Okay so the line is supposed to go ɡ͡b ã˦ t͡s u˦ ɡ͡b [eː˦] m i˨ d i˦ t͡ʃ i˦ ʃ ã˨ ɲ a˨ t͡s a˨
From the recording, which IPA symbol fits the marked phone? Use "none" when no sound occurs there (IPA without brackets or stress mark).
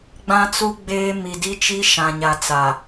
eː˦